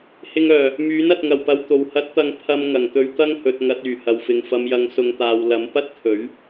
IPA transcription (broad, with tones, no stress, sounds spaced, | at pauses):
h ɪ˧ ŋ œː˨˩ | m yː˨˥ n ɐ˨ t̚ ŋ ɐ˨˩ w p ɐ˨ w t̪ o˨˩ w h ɐ˨˥ t̚ t̪ ɐ˨˧ ŋ pʰ ɐ˧ m ŋ ɐ˨˩ ŋ t̪ ɵ˧ ɥ t̪ ɐ˥ ŋ h ɵ˨ t̚ ŋ ɐ˧ t̚ yː˨˩ h ɐ˨ w f ɪ˨ ŋ f ɐ˨ m j ɐ˨ ŋ s ʊ˨˧ ŋ t̪ aː˨ w l ɐ˨˥ m p ɐ˥ t̚ t̪ʰ ɵ˨˥ ɥ